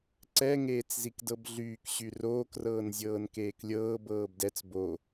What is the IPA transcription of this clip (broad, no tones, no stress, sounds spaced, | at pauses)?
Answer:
ǀ ɛ ŋ eː t͡s z i k d ɤ b ɮ yː k ɕ y r oː k r ɤː n zʲ ɤː n k eː k lʲ ɤː b ɤː b d ɛ t͡s b o